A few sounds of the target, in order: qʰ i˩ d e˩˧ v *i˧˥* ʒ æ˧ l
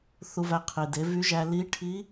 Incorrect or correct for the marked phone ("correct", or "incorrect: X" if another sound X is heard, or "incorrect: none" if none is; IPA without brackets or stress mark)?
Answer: incorrect: y˧˥